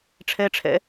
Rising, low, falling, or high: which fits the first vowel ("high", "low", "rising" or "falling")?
high